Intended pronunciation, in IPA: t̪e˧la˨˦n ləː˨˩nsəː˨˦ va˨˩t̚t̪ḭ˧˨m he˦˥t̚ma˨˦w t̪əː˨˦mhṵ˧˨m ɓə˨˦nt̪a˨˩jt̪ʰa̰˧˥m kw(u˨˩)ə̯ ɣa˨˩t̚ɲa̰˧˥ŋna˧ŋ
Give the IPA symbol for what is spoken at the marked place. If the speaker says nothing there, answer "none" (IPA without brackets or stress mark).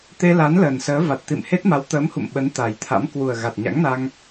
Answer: u˨˩